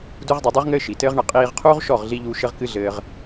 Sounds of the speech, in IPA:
du˦ʁdˤɐ˧dˤu˦ʁŋɘː˦ ʃi˨tɘː˦ʁɳɐ˧ qʼiː˧ʁqʰuː˦ʁʃɔ˦˨ʁɮi˧ ʎuː˧ ʃɘ˦ʁkɨ˦ ɮɘː˧ʁ

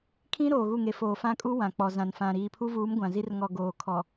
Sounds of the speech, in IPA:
kʰĩ˦ ɾoː˨ɣu˦˨ŋe˨ foː˨fã˦kʼu˦ wã˨k͡pɔ˨zã˨nfã˨ ɾiː˨pʰu˦vuː˨˦m ɡʷã˨zi˦r ŋɔ˨ ɡoː˨ kʰɔ˨

